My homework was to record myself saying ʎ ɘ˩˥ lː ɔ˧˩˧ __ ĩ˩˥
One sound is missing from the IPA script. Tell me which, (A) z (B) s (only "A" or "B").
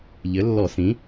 B